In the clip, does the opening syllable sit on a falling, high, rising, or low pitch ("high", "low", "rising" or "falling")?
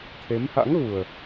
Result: rising